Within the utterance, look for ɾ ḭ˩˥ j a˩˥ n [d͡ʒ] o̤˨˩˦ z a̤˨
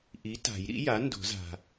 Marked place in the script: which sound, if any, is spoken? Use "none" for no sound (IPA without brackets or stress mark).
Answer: d